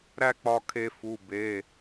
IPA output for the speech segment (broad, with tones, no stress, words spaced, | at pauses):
ɾæ˥˧k͡pɒ˧ kʰe˧fu˩˧˩ be˩˧˩